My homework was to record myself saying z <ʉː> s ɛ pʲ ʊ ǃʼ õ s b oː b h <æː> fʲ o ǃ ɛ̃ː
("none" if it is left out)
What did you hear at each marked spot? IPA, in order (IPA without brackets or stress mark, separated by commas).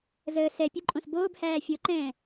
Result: əː, æː